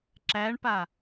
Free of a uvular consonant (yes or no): yes